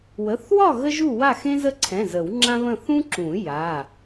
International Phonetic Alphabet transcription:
w ə˩˧˩ θ w ɒ˥˨ ɣ ə˥ ʒ u˥˨ w a˥˨ x ẽ˥ z ə˥˨ ǀʰ ɛ̃˩˧˩ z ə˨˩˦ w ŋ͡ǁ ã˥ β ə̃˥˨ θ ũ˥ ǁ ũ˨˩˦ j a˩˧˩

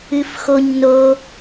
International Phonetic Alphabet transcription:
ɨ f x o ɲ n o

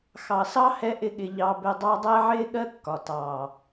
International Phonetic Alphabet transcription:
x ɑ˨ s ɑ˦ h ɛ˧ ʔ ɪ˦ ɠ ɪ˧ ʎ ɑ˧ b ɪ˧ dˤ ɑ˦ dˤ ɛ˦ ʕ ɪː˦ ɠ ɜ˦ kː ɒ˨ t ɑː˨

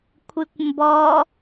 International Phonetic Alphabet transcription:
kʷʰ ɨ kʷ m b ɔ

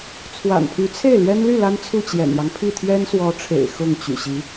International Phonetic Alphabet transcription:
t͡sʰ w a̰˨˩ n pʰ y˧˥ t͡sʰ e˥˩ ɪ̯ l ɥ ɛ˥ n l y˥˩ l a˥ n t͡sʰ u˥˩ t͡ɕ j ɛ̰˨˩ n j ɑ˦ ŋ pʰ i˥˩ t̪ʰ ɥ ɛ˥ n s w ɔ˧˥ ʈ͡ʂʰ ḛ˨˩ ɪ̯ x ʊ˥˩ ŋ t͡ɕ y̰˨˩ ɕ i˧˥

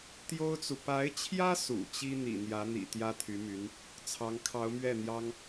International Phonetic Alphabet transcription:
t̪ j o˥ ʊ̯ t͡s u˨ p a˧˥ ɪ̯ t͡ɕʰ j ä˥ s ṵ˨˩ t͡ɕ i˥ n̪ ḭ˨˩ n̪ j ä˧˥ n̪ ḭ˨˩ t̪ j ä˥ t̪ʰ y˧˥ m y˧˥ n | t͡sʰ ɑ˧˥ ŋ kʰ ɑ˧˥ ʊ̯ m ɥ ɛ˥˩ n̪ j ɑ˥ ŋ

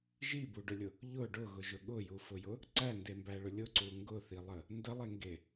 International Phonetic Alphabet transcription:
ʒ i b u ɖ ʊ lʲ ʊ | ʎ ʊ ɖ ʊ ɣ ʊ ʒ ʊ ɠ ʊ j u f ʊ j ʊ | ǀ æ n d e m b æ ɭ ʊ lʲ ʊ ǀ u ŋ ɡ ʊ θ i lˠ ə | n d ə lˠ e ŋ ɡ e

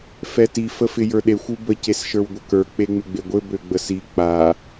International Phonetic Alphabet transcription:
f ɛ t i f ə f ɪ j ə˞ ɗ e xʷ u b ə c e s ʃ ə˞ w ɡʷ ə k ə˞ k͡p e ŋ͡m ɪ ɡ͡b e ɡʷ ɘ b ø ɡ͡b ə s i k͡p a

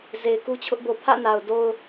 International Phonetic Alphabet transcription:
z e˨ ɪ̯ k u˦ t͡ɕʰ ʊ˦ ʔ b o˨ pʰ ä̰˦˨ n a˨ ʊ̯ d o˦ ʊ̯

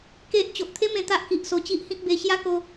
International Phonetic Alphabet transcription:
k e˦ ʔ t͡ɕ o˨ ʔ t̪ʰ e˦ m ẽ˧ t̪ a˦ ʔ k i˨ ʔ s o˧ t͡ɕ i˦ ʔ h ĩ˦ k̚ b e˧ ɕ j a˦ k o˧

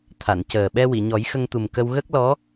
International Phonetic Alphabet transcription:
t̪ʰ a˨˩˨ n c əː˨˩ ɓ ɛ˧ w i˨˩˨ ɲ ɔ˨˩˦ j x ə˧ ŋ t̪ u˨˩ m k ə˧ w ɣ ə˦˥ k̚ l ɔ˧˥

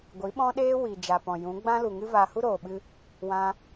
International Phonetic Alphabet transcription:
ɡʷ i˨˦ ɓ ɔ̃˦ ɗ eː˦ w i˨ d͡ʒ a˨ p ɔ̃˨ j ũ˨˦ ɡ͡b ã˦ l u˨ ŋ ɨ˦ v a˧ h u˦ ɾ oː˨ ɓ ɨ˧ | w ã˧

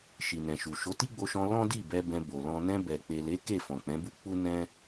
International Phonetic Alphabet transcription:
ʃ i˨ n ɛ̃˨ ʃ u˨ ʃ o˨˦ t i˦ ɡ͡b o˧ ʃ ɔ̃˧ l ɔ̃˦ d i˦˨ b ɛ˧ b ɛ̃˧ b o˨ l ɔ̃˧ n ɛ̃˧ b ɛ˨ k͡p e˨ l e˨˦ k e˦˨ f ɔ̃˨ k͡p ɛ̃˨˦ b u˦ k͡p u˦ n ɛ̃˦

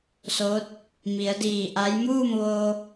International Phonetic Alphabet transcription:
s o˧˥ t̚ | m i˩˧ ə̯ d iː˧˩ ʔ a˧˥ j m uː˥˨ m ʋ oː˧

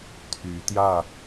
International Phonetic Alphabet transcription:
t̪ʰ y˨˦ t̪ j ä˥˨

